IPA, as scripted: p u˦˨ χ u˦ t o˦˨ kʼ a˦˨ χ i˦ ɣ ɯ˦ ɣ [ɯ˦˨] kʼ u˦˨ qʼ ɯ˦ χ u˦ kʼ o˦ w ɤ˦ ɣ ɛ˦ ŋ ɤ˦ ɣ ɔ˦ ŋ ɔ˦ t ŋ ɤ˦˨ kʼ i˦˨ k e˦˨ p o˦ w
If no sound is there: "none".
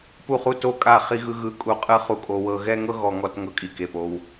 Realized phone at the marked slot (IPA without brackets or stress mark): ɯ˦˨